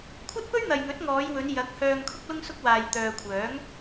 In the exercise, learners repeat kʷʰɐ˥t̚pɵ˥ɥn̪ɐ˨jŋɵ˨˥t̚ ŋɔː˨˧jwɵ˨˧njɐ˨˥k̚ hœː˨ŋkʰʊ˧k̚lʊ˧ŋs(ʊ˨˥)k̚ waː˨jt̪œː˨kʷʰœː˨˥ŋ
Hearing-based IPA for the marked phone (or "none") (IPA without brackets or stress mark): ʊ˧